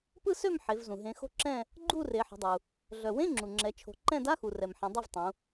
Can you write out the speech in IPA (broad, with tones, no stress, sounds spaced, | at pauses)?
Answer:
p ɯ˦˨ s ø˦˨ m ħ e˩˧ v z ũ˩ ɦ ẽ˩˧ x o̤˦˨ ǁ ɛ̃˦˨ | ɡ͡ǃ u˦˨ r e˩˧ ħ ə̤˩˧ dˤ u˩ | ɮ œ˩ w ẽ˧˥˧ ŋ͡ǁ u˩ ŋ͡ǁ ɛ˩˧ t͡ʃʰ o̤˩˧ ǃ ɛ̃˦˨ d a˧˥˧ x u˩ r ɛ˩ m ħ ɛ̃˩˧ dˤ ɛ˦˨ v tˤ ũ˩˧